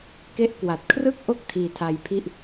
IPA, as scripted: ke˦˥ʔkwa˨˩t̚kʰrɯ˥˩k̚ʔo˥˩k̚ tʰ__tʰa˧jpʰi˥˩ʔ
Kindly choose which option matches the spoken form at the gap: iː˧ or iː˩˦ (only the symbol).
iː˧